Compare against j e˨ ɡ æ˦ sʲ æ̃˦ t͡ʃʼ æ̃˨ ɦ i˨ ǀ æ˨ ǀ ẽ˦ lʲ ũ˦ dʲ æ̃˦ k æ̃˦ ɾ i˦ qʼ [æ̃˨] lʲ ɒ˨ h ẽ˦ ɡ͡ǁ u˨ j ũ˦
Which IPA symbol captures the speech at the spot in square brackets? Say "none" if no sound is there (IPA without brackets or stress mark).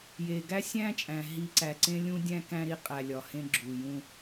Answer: æ˨